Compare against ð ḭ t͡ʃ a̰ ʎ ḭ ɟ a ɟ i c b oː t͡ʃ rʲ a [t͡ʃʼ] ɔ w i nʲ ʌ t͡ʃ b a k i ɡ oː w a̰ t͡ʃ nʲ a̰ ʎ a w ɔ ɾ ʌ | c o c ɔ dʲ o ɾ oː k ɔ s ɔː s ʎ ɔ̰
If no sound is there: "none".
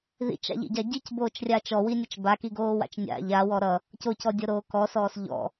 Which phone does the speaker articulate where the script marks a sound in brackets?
t͡ʃ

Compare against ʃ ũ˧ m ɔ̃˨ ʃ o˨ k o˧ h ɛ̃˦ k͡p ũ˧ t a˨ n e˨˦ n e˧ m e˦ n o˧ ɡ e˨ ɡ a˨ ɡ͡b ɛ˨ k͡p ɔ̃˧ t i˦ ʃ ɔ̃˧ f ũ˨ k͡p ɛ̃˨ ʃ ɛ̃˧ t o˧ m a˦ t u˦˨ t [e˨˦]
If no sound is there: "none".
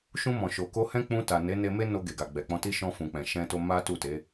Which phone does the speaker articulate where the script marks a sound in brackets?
e˨˦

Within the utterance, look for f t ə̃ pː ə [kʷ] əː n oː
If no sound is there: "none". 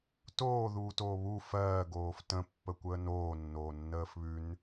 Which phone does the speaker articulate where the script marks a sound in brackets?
kʷ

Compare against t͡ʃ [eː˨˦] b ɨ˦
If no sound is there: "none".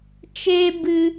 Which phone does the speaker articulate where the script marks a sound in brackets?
eː˦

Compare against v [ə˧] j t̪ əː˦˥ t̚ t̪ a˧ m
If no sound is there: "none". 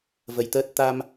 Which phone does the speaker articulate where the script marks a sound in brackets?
ə˧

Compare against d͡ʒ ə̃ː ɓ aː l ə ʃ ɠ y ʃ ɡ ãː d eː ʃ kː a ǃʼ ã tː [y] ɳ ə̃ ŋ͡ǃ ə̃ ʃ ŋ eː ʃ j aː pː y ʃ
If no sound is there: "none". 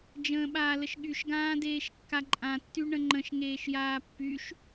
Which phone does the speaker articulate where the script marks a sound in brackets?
y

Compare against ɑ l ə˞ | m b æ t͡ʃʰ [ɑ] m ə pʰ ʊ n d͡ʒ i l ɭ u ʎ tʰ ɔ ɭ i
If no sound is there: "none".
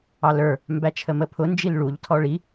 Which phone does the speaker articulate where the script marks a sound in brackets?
ə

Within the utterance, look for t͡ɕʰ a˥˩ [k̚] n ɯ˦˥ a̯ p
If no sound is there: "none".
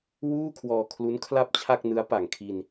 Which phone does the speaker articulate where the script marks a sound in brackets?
k̚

